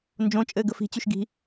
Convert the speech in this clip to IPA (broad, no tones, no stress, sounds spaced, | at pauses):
n d͡ʒ õ t͡ʃʼ ɘː ɡ ə f i̤ t͡ɕ y ʃ ɡ i̤